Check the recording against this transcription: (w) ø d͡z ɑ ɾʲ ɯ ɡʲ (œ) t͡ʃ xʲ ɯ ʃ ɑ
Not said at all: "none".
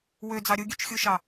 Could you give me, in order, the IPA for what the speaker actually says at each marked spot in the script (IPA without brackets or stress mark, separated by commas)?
w, ø